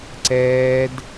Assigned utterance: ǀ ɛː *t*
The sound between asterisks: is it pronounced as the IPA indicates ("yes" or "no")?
no